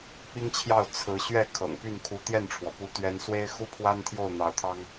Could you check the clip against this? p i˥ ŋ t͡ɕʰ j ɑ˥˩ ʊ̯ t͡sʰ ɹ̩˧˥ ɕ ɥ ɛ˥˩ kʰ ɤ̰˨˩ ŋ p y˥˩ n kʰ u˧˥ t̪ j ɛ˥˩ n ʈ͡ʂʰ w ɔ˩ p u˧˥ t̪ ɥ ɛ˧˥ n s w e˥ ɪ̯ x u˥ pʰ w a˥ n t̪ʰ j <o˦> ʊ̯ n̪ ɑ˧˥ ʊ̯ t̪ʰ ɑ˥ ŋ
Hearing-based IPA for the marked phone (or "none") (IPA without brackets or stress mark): o˥˩